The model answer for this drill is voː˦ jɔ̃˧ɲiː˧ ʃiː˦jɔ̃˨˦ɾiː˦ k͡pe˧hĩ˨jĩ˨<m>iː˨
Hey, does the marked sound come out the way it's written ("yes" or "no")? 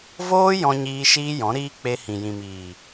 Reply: yes